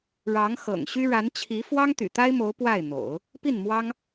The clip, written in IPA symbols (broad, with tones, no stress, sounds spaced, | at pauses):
ɻ ɑ˧˥ ŋ x ɤ̰˨˩ ŋ ɕ y˥ ɻ a˧˥ n t͡ɕʰ i˧˥ f w ɑ˥ ŋ t̪ y̰˨˩ t̪ a˥ ɪ̯ m o˧˥ ʊ̯ p w a˥˩ ɪ̯ n̪ o̰˨˩˦ ʊ̯ | p i˥˩ n m w ɑ˥ ŋ